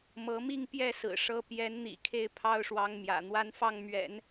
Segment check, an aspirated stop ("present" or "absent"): present